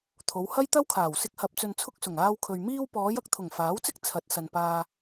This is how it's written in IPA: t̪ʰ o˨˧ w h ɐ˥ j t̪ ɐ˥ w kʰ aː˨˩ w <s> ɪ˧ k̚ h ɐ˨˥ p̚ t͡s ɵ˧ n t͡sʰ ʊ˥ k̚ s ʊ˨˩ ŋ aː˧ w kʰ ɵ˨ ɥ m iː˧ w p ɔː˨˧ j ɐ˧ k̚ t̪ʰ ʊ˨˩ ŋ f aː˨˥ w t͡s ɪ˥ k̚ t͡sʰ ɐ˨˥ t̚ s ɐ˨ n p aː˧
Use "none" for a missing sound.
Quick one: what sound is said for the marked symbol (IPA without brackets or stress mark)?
s